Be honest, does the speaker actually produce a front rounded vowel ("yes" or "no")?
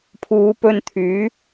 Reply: yes